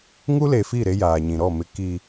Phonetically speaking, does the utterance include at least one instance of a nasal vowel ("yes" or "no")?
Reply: yes